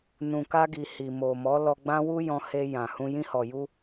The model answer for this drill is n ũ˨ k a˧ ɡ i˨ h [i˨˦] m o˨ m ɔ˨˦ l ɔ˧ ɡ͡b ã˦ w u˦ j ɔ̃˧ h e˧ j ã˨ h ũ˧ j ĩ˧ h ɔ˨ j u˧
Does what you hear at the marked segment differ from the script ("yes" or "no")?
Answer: yes